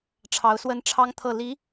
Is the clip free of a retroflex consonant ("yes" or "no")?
no